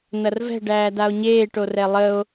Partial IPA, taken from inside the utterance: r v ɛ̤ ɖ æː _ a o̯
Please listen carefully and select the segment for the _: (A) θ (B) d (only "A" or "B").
B